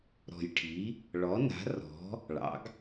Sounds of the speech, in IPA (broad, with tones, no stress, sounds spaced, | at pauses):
ɾ ɔ̤˨˩ j ʈʰ i˩˥ | ɭ ɔ˩˥ n a̤˩˥ r ɔ̤˩˥ | ɭ ɑ̰˩˥ ɡ